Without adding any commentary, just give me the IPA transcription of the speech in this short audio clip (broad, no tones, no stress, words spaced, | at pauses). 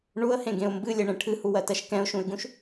ɳuə̯hẽɡẽʊ̯ mbɨlʲeɳẽ ʈʰɨhuwɜtɜʃ kɛ̃ʊ̯ʃũɪ̯ɡũʃ